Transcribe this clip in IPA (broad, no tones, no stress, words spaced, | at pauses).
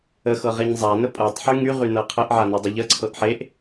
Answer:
əxɤ ʁeɲzˤanə pʼɤtˤħy ŋyʁy nɤqʰəʔʕa nɤdˤəʎəǀʰɤʔ ħeʔ